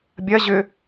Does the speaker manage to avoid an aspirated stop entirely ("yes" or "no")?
yes